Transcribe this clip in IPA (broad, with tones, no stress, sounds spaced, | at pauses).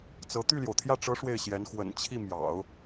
t͡s ɤ˧˥ t̪ y˥˩ l j o˩ ʊ̯ t̪ʰ j ä˥˩ ʈ͡ʂ ɤ˧˥ ʂ w e˥˩ ɪ̯ ɕ j ɛ˧˥ n x w ə̰˨˩ n t͡ɕʰ i˥˩ m j ɑ̰˨˩˦ ʊ̯